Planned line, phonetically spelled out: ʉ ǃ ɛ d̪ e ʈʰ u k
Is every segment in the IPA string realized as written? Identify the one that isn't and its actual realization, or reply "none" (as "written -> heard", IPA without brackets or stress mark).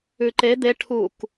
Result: ɛ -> e